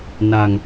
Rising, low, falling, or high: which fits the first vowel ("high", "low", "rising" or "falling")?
low